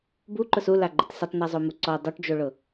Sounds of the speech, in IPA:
buǃʊs ulaɡ͡ǃɪt sɪtˤnɛzˤomu ǀɔ dˤoʈd͡ʒoɭʊ

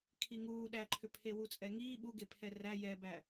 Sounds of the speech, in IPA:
kʰiŋuː ɗæǃʰʏ pʰewut͡sʼɛŋiː ɓuɡepʰɛ ræ jɛbæ

